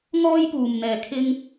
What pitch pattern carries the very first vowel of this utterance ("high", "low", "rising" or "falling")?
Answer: high